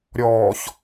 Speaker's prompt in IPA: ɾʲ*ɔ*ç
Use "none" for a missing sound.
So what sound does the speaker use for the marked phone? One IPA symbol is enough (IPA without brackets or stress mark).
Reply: ɔː